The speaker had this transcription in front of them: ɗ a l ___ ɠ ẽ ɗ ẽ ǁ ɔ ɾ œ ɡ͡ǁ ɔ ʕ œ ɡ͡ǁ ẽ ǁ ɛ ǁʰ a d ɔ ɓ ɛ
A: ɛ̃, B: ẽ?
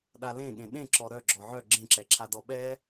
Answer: B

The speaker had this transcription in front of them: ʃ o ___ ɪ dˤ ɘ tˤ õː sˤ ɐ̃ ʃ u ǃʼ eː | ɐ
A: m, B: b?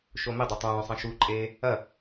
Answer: A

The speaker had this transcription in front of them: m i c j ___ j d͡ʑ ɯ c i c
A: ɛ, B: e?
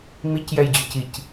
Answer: A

